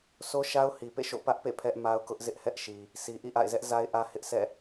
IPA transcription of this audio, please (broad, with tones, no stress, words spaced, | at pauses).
so˦ʃa˦ʊ̯hi˨pḛ˦˨ ʃo̰˦˨ pä˦ʔpḛ˦˨ pʰɛ˦ʔma˦ʊ̯ kʊ˦ʔzɪ˦ʔhɛ˦ʔʃi˨ | sʰi˨ʔḭ˦˨ʔa̰˦˨ɪ̯zɛ˦ʔ za˦ɪ̯ʔä˦hɪ˦ʔ sʰɛ̰˦˨